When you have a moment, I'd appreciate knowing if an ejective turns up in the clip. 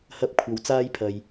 no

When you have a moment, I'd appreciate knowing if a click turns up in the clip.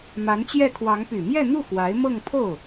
no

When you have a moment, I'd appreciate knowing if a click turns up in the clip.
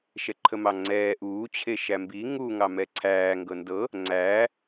yes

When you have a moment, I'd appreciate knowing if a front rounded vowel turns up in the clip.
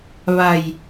no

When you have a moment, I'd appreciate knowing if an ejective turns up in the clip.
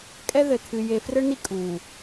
yes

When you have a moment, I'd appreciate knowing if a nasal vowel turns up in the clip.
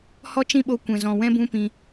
yes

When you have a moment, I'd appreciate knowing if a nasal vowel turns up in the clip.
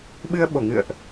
no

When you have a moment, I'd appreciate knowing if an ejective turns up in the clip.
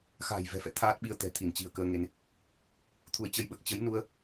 no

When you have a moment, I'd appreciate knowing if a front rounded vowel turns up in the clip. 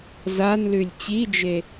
no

